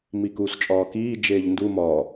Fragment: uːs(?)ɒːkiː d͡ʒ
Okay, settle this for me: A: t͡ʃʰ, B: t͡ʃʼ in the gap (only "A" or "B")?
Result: B